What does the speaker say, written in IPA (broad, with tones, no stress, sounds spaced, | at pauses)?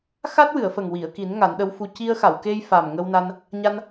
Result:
x a˦˥ t̚ w ɨ˨˩˨ ə̯ f ə˨˩ ŋ w i˨˩˨ ə̯ k i˨˩˦ n ŋ a˨˩˦ n ɗ ə˧˥ w f u˧ c i˧ ə̯ x a˨˩˨ w k e˧ j f a˨˩ m ŋ ə˧ w n a˧ n | ɲ a˧ n